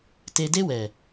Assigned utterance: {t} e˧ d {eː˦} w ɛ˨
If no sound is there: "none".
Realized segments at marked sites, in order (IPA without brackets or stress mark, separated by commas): t, e˦